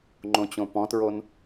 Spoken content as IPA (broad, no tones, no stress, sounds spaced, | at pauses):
ŋ͡ǃ õ t͡ɕ õ p ɔ̃ t ɹ o n